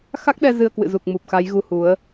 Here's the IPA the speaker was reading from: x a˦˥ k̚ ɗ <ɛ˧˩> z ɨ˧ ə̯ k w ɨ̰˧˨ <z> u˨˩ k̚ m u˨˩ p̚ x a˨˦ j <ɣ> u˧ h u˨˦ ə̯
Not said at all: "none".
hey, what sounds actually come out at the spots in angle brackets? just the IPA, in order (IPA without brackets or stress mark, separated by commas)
ɛ˧, z, ɣ